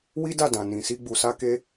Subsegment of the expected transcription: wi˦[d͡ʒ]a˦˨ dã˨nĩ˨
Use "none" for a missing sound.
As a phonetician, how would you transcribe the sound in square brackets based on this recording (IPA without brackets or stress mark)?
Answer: d